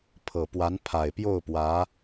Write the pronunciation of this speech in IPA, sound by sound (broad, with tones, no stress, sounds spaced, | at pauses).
pʰ ɤ˨˩ p w a˧˥ n pʰ a˨˩ ɪ̯ p j o˥˩ ʊ̯ p w ä˧˥